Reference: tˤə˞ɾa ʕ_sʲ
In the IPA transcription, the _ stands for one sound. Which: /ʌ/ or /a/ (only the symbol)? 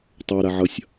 ʌ